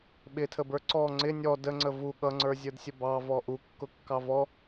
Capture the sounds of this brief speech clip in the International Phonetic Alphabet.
ɓ ɪ tʰ ə b ə˞ ǀ ɔ ŋ͡ǀ ɪ nʲ ɔ d ə ŋ͡ǀ ə v u ɠ ʌ ŋ͡ǀ ə˞ zʲ ə˞ d sʲ ə b ɑ v ɔ ʔ u kː ʊ kː ɑ v ɔ

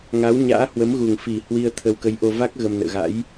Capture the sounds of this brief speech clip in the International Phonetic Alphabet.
ŋ a˨˦ w ɲ a̰ː˧˥ h w ə˨˦ m ɣ u˨˩ ŋ f i˨˩ h w i˧ ə̯ t̪ʰ ə˧ w k ə˨˦ j ʔ o˧ v a˦˥ k̚ ɣ ə˧ m n ə̰ː˧˨ ɣ a̰˧˥ j

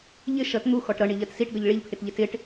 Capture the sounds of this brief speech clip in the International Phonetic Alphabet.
ʎ ɪ ʃ ʌ t n̪ u x ɔ ʈ ɾ ʌ ɳ i ʎ ɜ t s i ʈ ɡ ʌ ʎ ɭ i ʎ pʰ ɪ t ʎ ɪ t ɪ ʈ

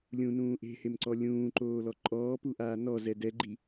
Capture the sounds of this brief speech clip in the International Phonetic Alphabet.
lʲ ũ n ũː ʔ e̤ h e m ǀ ɔ lʲ ũː ǃ oː l ɔ ǃʼ ɔː p u ʔ aː n ɔ z ɛ d ɛ ɡ͡ǃ i

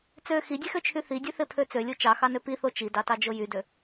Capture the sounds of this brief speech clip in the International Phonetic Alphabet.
t͡s ø x i dʲ e x ø t͡ʃʰ y θ i dʲ ø θ e pʰ ø t͡s ø lʲ o t͡ʃ ɑ x ɑ n ø p i θ o t͡ʃ i d ɑ t ɑ d͡ʒ o j y d ø

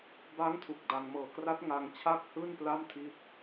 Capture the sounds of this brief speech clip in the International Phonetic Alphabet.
b a˦˥ ŋ tʰ u˨˩ k̚ d a˧ ŋ m ɤː˨˩ k r a˦˥ t̚ ŋ a˧ ŋ t͡ɕʰ a˦˥ k̚ h ɯː˥˩ n p l a˥˩ m tʰ i˥˩ t̚

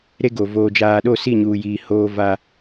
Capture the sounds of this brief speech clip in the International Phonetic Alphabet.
ɾ e˦ ɡ o˨ v oː˨ d͡ʒ aː˨ ɗ o˦˨ s i˦˨ ɲ uː˨ j iː˨ h oː˦ v a˦

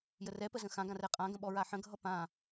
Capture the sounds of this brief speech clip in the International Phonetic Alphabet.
j ə r ɛ p ə z ə̃ x ã ɡ ã r ɛ qʼ ã ɡ ə̃ ɓ ɔ ɹ a ħ ə̃ ɡʱ ʌ p ã

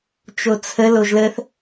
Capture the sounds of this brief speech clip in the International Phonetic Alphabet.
t͡ʃ o t͡sʰ ə l o ʒ l ə θ

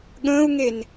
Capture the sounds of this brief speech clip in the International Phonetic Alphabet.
ɠ ə̃ː u̯ ŋ e n

